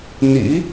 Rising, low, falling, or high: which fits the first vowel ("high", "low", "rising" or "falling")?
rising